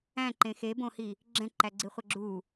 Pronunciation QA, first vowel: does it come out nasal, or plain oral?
nasal